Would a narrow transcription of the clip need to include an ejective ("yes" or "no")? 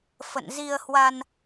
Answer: no